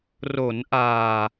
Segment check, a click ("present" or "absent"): absent